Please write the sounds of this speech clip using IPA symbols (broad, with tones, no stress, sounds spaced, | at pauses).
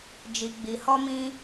d͡ʒ i˨ ɡ͡b i˨ h ɔ˧ m ĩ˧